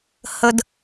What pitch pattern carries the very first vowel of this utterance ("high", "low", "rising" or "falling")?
high